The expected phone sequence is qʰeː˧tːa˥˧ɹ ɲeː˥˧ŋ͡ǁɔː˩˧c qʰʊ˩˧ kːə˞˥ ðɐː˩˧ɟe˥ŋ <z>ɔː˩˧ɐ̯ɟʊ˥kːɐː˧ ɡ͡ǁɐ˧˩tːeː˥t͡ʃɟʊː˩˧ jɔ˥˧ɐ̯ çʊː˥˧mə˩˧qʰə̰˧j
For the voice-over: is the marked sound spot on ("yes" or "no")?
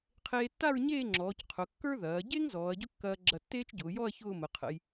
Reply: yes